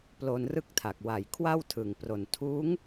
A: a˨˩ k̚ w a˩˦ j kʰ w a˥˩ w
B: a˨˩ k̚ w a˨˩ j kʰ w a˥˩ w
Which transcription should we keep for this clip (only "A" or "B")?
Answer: B